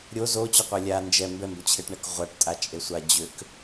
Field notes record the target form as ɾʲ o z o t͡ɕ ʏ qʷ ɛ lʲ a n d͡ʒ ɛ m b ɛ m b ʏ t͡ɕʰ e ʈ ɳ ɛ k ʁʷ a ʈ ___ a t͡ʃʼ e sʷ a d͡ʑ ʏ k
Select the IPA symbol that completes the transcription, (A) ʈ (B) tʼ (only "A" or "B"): B